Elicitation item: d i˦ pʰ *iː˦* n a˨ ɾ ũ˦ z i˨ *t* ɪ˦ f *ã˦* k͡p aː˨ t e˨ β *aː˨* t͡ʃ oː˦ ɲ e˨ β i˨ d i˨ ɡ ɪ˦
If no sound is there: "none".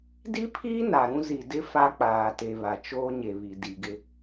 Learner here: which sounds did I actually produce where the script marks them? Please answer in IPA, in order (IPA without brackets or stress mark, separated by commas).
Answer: iː˦, d, a˦, a˨